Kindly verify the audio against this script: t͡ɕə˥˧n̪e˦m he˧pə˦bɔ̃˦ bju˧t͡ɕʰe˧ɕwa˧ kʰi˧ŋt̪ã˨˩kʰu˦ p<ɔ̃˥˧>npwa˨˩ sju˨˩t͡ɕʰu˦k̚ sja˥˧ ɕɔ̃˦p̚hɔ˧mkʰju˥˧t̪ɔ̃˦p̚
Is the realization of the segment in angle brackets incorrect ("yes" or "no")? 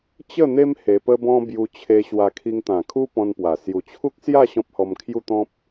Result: yes